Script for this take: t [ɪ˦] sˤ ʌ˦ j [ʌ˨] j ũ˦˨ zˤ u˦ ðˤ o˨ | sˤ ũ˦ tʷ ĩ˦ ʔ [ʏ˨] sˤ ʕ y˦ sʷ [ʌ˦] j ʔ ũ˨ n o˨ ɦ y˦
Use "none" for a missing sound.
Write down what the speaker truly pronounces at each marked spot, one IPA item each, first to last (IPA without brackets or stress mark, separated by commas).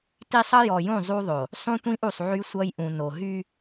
i˦, ɔ˨, u˨, ʌ˦